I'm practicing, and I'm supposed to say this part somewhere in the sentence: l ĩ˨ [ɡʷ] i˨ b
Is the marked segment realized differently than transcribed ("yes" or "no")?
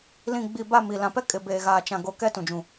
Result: yes